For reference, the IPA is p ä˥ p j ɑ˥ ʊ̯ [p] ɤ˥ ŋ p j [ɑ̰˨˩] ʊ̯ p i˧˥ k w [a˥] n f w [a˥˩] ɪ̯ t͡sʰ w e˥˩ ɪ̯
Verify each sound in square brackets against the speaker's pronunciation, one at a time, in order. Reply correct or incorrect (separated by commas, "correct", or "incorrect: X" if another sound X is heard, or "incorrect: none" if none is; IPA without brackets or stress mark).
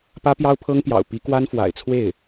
incorrect: pʰ, correct, correct, incorrect: a̰˨˩